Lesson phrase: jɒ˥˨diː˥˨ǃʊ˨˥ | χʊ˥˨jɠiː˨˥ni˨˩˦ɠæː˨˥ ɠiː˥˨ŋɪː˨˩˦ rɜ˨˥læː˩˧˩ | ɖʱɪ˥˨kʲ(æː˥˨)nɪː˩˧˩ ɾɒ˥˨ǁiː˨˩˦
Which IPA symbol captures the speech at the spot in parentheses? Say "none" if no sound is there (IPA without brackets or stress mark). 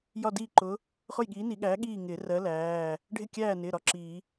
æː˥˨